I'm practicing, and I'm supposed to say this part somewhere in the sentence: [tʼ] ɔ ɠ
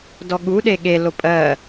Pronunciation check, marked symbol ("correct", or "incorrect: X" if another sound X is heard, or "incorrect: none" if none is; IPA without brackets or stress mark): incorrect: d